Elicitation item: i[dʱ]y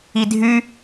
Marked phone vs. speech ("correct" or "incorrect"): correct